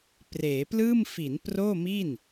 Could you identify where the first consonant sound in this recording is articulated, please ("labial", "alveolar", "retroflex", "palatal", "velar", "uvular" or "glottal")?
labial